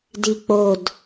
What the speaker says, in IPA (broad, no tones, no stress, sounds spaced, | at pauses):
d i k͡p o d